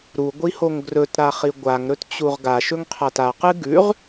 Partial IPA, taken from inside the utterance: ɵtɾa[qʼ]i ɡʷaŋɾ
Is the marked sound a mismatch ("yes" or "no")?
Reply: yes